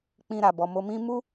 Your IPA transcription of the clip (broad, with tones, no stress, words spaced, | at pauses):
k͡pĩ˧ɾa˨bɔ˨ mo˨mĩ˧ mu˦